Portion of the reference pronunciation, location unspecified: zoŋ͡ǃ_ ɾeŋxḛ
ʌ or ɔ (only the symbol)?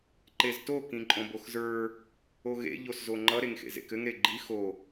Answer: ʌ